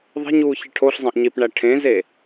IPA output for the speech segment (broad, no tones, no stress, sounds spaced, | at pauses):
ðˤ e̤ ɲ uː ç e ʈʰ o ɬ zˤ ẽ ʔ ɲ i p ɳ æ ʈʰ ẽ z e